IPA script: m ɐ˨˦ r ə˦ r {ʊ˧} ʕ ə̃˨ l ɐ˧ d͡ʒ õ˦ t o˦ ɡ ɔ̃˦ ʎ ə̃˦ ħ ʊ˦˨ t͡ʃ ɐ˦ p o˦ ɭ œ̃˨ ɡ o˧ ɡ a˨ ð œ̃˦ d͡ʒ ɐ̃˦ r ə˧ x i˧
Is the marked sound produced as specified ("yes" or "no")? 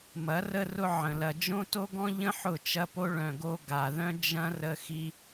no